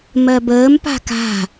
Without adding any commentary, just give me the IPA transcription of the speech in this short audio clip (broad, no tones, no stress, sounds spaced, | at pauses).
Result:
m ɜ b əː m p a̤ k a̤